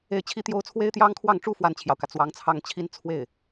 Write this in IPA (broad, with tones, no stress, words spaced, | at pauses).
e˥˩ɪ̯t͡ɕʰi˥ t̪jo˥ʊ̯ t͡sʰwe˥ɪ̯t̪jɑ˥ŋkʰwɑ˥˩ŋʈ͡ʂu˥ fwa˥˩nt͡ɕʰjɑ˩ʊ̯kä˩ t͡swɑ˧˥ŋt͡sʰɑ˥˩ŋt͡ɕʰi˥n t͡sʰwe˥˩ɪ̯